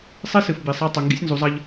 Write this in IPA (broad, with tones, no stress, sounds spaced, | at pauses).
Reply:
sˤ i˦ s ɨ˨ f b i˨ sˤ a˦ tˤ ɵ˨ ŋ ɡ ḭ˦ sʲ n z u˨˦ zˤ ɐ˦ ʎ